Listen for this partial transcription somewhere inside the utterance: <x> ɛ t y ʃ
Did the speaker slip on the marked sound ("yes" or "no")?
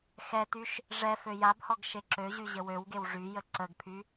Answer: no